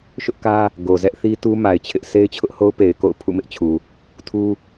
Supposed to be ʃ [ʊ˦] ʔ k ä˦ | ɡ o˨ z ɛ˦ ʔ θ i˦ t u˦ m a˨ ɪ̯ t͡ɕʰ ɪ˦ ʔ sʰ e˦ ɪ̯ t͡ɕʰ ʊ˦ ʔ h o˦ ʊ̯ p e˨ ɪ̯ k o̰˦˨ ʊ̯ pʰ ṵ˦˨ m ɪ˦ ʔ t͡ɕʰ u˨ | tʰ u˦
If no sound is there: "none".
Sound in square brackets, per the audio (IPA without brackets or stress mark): ʊ˦